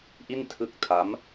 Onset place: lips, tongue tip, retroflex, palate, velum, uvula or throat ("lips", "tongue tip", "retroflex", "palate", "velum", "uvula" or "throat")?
throat